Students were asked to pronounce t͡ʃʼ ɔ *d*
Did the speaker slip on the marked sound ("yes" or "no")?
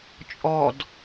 no